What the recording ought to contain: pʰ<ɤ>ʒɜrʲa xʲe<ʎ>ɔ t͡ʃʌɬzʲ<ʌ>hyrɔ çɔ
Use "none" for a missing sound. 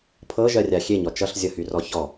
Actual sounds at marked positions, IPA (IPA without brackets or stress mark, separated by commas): ɤ, ɲ, ʌ